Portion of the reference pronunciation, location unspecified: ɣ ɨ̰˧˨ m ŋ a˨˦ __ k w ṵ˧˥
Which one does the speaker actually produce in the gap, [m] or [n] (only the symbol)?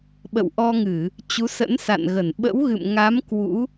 m